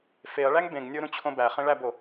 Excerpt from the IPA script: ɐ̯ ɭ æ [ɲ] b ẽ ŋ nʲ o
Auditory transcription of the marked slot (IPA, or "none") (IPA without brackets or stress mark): ŋ